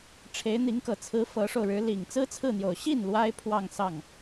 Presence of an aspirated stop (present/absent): present